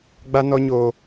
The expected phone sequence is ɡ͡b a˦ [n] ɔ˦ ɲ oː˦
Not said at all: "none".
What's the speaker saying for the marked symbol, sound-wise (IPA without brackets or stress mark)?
n